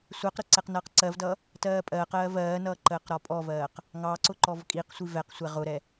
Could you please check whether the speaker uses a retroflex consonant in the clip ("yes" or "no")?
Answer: no